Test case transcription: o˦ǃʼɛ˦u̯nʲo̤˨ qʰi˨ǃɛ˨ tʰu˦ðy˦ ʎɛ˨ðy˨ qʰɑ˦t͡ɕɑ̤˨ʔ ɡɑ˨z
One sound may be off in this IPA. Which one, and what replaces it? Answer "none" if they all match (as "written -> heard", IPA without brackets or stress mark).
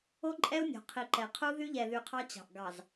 tʰ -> qʰ